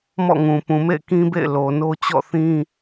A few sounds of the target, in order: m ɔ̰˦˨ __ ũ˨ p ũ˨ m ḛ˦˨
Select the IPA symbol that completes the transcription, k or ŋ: ŋ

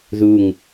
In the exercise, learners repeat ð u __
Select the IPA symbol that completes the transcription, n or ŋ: ŋ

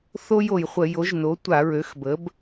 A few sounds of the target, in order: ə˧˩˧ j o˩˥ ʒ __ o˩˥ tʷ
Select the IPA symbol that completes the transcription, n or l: n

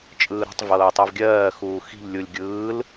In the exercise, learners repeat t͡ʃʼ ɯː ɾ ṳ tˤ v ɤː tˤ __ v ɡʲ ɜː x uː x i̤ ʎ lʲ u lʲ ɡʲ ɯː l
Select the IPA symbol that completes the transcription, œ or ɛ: ɛ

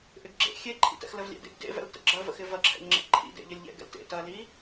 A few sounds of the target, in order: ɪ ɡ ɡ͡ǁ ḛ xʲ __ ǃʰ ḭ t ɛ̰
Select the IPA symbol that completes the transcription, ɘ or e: e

